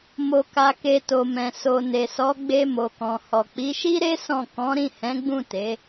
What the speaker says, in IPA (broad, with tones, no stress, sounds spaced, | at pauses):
m o˨ k a˨ k e˨ t o˨ m ɛ̃˨ s o˨ n e˨ s ɔ˨˦ ɡ͡b e˧ m o˨ k ɔ̃˨ h ɔ˨ k͡p i˨˦ ʃ i˦ ɾ e˦ s ɔ̃˦˨ k ɔ̃˨˦ ɾ ĩ˦˨ h ɛ̃˨˦ ɡ͡b ũ˦˨ t e˨˦